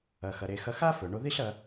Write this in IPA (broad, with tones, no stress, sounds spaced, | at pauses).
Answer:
ɐ˩ x ɐ˩ ɾ e˩ x ɐ˧ x a˥ f ɵ˩ ɳ o˧ ð i˥ ɬ ɐ˧